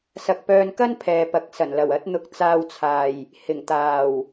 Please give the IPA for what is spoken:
sɐ˨k̚pœː˧nkɐ˥n pʰɛː˨pɐ˨˥k̚sɐ˨˩nlɐ˨˩w ɐ˨˥t̚n̪ʊ˨˥k̚ t͡saː˧wt͡sʰaː˨˩j | hɪ˨˩ŋ t̪aː˨˩w

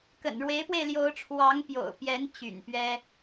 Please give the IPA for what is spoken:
kə̰˨˩nɻwe˧˥ɪ̯pwe˧ɪ̯ ljo˧˥ʊ̯ʈ͡ʂʰwɑ˧˥ŋpjo̰˨˩ʊ̯pjɛ˧˥n t͡ɕy̰˨˩npɥɛ˥

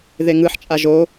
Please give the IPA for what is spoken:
ðeŋɯħt͡ʃʼa ʒo

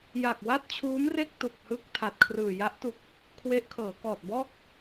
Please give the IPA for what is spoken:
ja˨˩k̚wa˥˩t̚t͡ɕʰuː˦˥mre˥˩k̚ tu˨˩k̚hɯ˥˩k̚ tʰa˨˩t̚kʰrɯː˨˩ ja˦˥ʔtu˨˩k̚ | kʰwe˦˥ʔkʰɤː˩˦kɔː˨˩t̚bɔː˥˩k̚

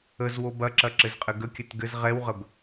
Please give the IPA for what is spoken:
əzwo bɐǁɐ ǁɘzqʼɘɡəkʲɘt ɡɘz ʁɛwʁəb

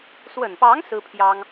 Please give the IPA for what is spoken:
swə˨˩npɑ˧˥ŋ sɹ̩˥pʰjɑ˥ŋ

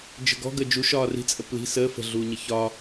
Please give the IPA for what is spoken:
d͡ʒə̤ɡɔ̤ ɡəd͡ʒu ʃɒːri̤t͡sʼə pli̤ səː fə̤ɮuːɲə çɒ

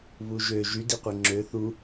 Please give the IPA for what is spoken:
βuʒø ʒydiqʷe ŋ͡ǁø θu

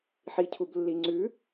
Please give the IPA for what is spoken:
ħicʰublːiŋ͡ǀʉ

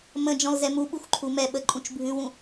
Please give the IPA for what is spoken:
mə̃ d͡ʒɔ̃lzɛmuɓux ǃʰumɛɓə ǃʼũt͡ʃbʱʉwũ

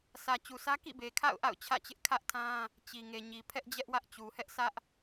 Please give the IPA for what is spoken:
sʰä˨t͡ɕu˨sʰä˦ kḭ˦˨be˨kʰa̰˦˨ʊ̯ ʔa̰˦˨ʊ̯t͡ɕʰä̰˦˨t͡ɕɪ˦ʔ kʰä˦ʔtʰã˦ | t͡ɕi˨ŋe˨ ɲi˨pʰɛ˦ʔ d͡ʑɛ˦ʔwä˦ʔt͡ɕu˨ hɛ˦ʔsʰä˦ʔ

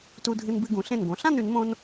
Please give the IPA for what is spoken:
tu˧dʱɨ˧nbɨ˧ ɡũ˩˧ɬẽ˧˩nɡõ˩˧ ɬã˥˧nʉ˩˧nmõ˧n

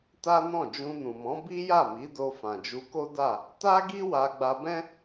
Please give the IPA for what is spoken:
ta˦nɔ̃˦˨ d͡ʒũ˧nũ˨mɔ̃˨˦ bi˦ja˦˨mi˨˦ do˧fã˨d͡ʒu˧ko˦ da˦˨ | ta˦ɡi˦ wa˧ɡ͡ba˧bɛ̃˦

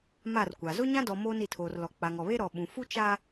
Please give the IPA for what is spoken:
ma˦˨rkʷa˨ zʊ˦ɲã˦dɔ˨ moː˦ni˨tʰoː˨rlɔ˨ k͡pa˨ŋɔ˨βe˦ ɾɔ˨ɓũ˨ fu˦t͡ʃa˦

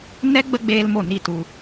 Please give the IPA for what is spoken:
nɛ˦ ɡ͡bə˦ ɡ͡beː˦lmo˦˨ni˦˨ tu˧

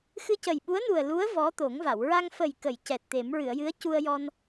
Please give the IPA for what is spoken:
xɨ˧cə˨˩jɓu˧˥ə̯nu˨˩ə̯ lu˧˥ə̯ vɔ˧˥t̪o˨˩˦ŋva˨˩˨w ɹa˧ŋfə˨˩jkə˨˩˨j cɛ˨˩t̚t̪e˨˩˦m ɹɨ˨˩˨ə̯jɨ˧˥ə̯cu˧ə̯jɔ˧n

